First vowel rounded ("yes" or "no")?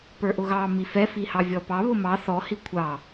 no